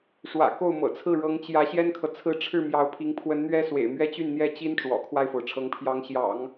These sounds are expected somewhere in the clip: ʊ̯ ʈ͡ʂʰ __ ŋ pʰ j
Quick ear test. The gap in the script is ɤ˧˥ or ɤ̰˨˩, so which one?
ɤ˧˥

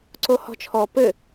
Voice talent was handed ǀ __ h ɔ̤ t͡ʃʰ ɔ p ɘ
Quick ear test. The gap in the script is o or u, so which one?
o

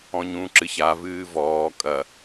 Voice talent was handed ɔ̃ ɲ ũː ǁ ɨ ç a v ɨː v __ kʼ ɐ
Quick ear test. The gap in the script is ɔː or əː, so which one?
ɔː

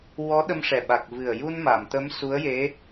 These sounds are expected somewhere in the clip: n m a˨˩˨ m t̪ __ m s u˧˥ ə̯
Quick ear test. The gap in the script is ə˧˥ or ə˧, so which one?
ə˧˥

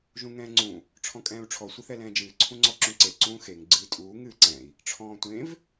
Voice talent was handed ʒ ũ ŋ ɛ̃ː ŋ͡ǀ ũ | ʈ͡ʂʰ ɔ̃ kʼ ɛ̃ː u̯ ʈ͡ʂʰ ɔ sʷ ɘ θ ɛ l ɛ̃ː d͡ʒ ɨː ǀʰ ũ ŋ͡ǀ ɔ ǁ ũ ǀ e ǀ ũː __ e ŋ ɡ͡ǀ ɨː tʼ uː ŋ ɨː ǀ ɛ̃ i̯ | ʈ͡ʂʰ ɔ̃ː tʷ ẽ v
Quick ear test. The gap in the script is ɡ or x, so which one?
x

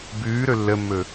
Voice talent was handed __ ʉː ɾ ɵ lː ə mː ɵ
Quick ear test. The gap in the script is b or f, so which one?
b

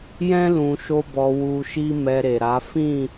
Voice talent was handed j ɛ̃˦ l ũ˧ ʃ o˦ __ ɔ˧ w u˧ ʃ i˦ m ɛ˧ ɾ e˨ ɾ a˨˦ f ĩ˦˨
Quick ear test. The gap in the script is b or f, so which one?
b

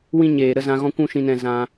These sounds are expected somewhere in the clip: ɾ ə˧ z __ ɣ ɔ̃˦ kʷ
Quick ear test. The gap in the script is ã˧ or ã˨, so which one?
ã˧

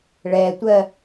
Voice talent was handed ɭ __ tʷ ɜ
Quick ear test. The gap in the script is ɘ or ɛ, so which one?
ɛ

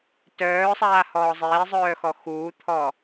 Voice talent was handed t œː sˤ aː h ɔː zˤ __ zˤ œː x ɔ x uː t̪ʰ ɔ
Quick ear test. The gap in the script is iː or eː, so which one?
eː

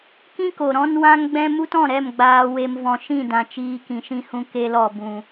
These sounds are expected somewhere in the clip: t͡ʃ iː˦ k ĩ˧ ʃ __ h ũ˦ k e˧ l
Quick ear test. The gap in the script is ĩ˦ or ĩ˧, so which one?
ĩ˦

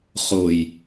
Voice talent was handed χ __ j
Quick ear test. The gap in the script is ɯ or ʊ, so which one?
ʊ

